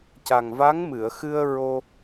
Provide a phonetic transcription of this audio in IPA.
ca˨˩ŋva˧˥ŋmɨ˨˩˨ə̯xɨ˧ə̯ ɹo˧

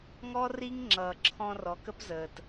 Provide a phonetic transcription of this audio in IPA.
ŋɔ˦ri˦ŋ ŋ͡ǁʌː˨ǁʰɔ̃˧rɔ˨k ə˦pzəː˨t

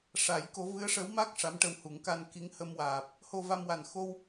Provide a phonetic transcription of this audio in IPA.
ʂa˨˩˦j ko˧˥ vɨ˧˥ə̯ʂə˧˥wma˦˥k̚ ʂa˧˥mʈə˧whu˨˩˦ŋ ka˧nki˧˥ŋhə˧mwaː˨˩p̚ | ho˧va˧mwa˨˩n xo˧w

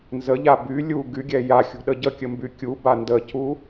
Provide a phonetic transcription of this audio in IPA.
nzəʎa by lʲu ɡyɡʲɛ jaxʲṳ ɗəɟəkʲə mbykʲuba ndəcu

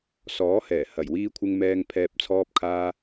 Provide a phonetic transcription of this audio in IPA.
sɔː˨˥hɛː˨˩ hɐ˨˩jwiː˧kʷʰɪ˧ŋ mɛː˧ŋ pʰɛː˨p̚t͡sʰɔː˧p̚kʰaː˧

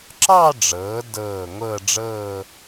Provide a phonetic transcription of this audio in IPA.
ǁɑ˥˧ɖ͡ʐɤː˩˧ dɤː˧˩ŋʷɤ˥˧ ɖ͡ʐɤː˥˧

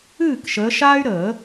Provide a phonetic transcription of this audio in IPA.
ɨː˥˨kʃəː˨˦ʃaː˥y̯ɾəː˨˩˦

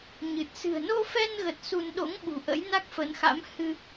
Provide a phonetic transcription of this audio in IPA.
ɲɨ˨˩t̚ sɨ̤˨˩ə̯no˧fɛ˧nɣə˨˩t̚ su˧n ɗo̰˧˥ŋɓṳ˨˩ ʔə̰˧˥jna˦˥k̚fə˨˦nxa̰˧˥m hɨ˧

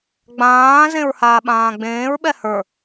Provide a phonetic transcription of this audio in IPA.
ɡ͡bãː zẽɹhaːɓãːɡ͡bẽːɹ ɓɛhə˞

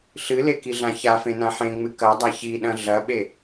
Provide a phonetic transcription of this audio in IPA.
ɬɨlekiɮã çafẽnã ħẽŋ͡mɨ kɐdˤa çiɗɐ̃ ɮɐɓe

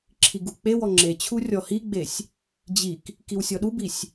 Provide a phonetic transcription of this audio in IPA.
ǁʰiɡuk͡pewɔ ŋ͡ǁet͡ɕʰu rʲɔhiɡ͡besʲ | d͡ʑik | kiwsʲɔɗubisʲ

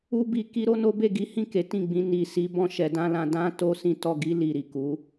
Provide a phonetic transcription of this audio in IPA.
u˦bi˧ ki˦ɾo˦no˦ be˦˨ɡi˨˦hĩ˦˨ ke˨˦tĩ˦˨ɡ͡bĩ˧ ni˨ si˧ bɔ̃˦ʃɛ˧dã˦lã˧ dã˦ to˧ sĩ˦tɔ˦˨ ɡi˧ li˨ɾi˨ku˨˦

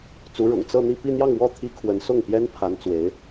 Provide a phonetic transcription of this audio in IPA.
t͡su˧˥ ɻʊ̰˨˩ŋ t͡sɤ˥˧n̪i˥˧ pi˥˧n̪jɑ˥˧ŋwɔ˥˩ t̪ʰi˥kʰwə˧˥n sʊ˥˩ŋpjɛ˥n pʰa˧˥n t͡swe˧˥ɪ̯

